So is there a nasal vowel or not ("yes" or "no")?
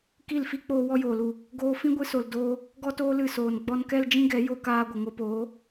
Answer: yes